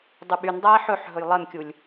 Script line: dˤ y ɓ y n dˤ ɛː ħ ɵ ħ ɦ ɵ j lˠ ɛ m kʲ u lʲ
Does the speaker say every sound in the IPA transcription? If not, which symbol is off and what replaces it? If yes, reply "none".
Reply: none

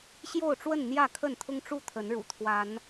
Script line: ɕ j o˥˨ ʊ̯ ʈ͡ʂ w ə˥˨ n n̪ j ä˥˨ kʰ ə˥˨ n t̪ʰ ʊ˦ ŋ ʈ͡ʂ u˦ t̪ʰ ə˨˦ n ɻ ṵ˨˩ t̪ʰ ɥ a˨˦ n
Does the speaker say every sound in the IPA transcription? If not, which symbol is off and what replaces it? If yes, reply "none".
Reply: ɥ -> w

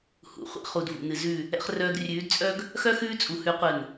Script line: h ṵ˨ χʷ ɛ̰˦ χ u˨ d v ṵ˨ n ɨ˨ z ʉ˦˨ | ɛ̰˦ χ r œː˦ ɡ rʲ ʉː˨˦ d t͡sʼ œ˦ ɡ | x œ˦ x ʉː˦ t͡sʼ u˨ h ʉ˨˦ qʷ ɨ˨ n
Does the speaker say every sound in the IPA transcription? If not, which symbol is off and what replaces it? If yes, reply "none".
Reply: none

